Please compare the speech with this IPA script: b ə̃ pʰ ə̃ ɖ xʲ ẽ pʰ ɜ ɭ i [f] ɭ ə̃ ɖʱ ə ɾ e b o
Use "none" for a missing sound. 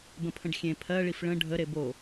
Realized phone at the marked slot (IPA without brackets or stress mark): f